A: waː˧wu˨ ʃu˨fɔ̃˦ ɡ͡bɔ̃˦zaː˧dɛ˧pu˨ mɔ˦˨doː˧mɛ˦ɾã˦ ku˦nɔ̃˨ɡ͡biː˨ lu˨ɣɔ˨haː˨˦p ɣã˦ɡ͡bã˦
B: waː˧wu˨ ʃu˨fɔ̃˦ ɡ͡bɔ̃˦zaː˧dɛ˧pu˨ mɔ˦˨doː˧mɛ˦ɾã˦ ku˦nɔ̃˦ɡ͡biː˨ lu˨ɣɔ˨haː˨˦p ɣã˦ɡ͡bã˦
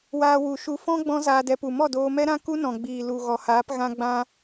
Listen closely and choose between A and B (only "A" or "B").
A